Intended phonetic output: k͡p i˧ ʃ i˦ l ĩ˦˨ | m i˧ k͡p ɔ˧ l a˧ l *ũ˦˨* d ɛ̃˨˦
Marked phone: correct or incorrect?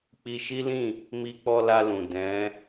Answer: incorrect